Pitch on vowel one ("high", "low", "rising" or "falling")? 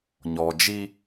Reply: low